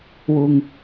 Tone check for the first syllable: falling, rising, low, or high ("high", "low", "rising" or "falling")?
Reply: low